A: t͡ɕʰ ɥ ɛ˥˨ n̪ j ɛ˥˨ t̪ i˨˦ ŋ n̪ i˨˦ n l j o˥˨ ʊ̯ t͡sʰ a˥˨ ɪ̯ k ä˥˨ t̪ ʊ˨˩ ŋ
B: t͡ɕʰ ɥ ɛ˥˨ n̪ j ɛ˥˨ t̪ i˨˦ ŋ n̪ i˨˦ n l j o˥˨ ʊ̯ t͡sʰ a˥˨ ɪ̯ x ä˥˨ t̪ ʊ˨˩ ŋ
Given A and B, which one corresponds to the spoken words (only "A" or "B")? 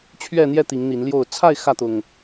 B